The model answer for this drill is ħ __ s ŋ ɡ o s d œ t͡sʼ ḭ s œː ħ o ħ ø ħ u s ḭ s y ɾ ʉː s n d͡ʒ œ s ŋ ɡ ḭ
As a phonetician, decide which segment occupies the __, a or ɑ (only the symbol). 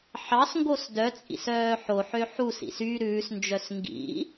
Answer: ɑ